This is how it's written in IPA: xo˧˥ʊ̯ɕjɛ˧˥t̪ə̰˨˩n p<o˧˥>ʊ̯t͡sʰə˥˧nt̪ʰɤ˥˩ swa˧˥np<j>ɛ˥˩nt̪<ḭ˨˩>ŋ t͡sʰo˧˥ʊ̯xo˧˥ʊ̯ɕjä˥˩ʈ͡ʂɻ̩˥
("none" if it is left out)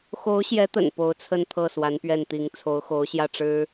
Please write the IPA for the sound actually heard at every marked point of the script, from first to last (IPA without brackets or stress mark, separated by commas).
o˧˥, ɥ, i˧˥